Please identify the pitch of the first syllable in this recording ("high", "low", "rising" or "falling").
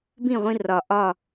falling